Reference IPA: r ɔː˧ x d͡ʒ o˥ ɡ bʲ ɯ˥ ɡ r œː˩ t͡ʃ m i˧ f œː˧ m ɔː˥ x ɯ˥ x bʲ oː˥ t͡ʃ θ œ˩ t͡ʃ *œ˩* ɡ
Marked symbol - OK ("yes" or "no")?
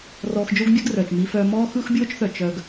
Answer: no